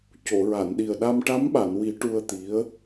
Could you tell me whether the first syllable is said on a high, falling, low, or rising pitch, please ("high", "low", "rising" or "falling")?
low